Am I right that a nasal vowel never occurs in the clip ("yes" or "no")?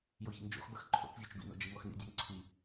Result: yes